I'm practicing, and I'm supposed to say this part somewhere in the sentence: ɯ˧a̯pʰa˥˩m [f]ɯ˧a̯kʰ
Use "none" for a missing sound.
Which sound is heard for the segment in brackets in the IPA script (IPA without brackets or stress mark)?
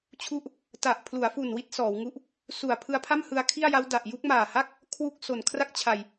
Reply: h